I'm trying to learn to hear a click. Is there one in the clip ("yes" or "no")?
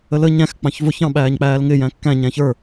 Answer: no